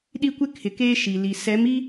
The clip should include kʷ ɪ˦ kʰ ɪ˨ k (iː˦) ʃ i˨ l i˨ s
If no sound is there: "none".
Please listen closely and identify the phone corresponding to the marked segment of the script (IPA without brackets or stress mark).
eː˦